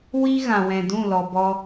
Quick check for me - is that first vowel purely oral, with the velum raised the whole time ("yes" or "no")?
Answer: yes